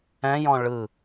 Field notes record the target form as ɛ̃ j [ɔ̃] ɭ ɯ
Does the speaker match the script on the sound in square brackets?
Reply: yes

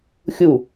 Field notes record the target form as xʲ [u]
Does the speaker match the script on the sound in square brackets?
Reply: yes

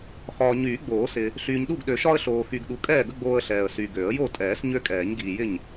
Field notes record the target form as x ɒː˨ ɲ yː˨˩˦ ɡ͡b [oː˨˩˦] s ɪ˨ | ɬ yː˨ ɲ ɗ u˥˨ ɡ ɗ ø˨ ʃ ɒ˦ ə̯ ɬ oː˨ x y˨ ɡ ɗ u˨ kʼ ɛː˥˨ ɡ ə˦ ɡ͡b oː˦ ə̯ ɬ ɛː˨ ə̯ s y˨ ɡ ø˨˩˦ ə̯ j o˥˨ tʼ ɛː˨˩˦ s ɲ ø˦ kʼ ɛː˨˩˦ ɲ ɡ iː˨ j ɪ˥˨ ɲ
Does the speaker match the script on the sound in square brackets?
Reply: yes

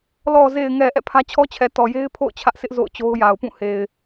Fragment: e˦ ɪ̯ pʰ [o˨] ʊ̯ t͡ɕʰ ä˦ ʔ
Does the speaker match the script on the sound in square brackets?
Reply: no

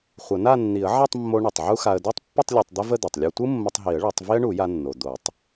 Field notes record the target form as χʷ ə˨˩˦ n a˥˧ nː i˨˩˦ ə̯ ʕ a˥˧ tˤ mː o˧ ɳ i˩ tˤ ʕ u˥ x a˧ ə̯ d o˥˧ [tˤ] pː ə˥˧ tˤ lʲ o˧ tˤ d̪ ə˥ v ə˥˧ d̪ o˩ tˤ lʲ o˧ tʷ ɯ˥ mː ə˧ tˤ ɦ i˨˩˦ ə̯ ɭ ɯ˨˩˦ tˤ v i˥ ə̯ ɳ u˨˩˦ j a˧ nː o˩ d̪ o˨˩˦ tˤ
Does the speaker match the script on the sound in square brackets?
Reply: yes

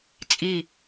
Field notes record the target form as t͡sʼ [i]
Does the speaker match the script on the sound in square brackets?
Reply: yes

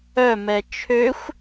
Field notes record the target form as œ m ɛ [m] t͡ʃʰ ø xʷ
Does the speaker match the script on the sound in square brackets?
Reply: no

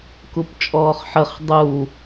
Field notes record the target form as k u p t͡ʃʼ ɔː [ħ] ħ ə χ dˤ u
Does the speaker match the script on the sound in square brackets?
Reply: no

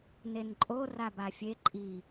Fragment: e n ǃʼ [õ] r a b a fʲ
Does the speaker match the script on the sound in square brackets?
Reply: no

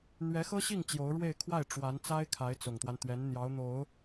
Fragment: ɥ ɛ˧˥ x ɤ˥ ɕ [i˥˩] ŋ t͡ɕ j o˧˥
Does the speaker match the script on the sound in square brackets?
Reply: yes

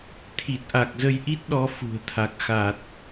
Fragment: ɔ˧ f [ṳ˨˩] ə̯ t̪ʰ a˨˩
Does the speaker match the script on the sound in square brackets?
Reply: yes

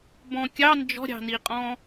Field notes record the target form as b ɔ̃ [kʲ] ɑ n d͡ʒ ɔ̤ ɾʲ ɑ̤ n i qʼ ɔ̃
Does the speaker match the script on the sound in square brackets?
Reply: yes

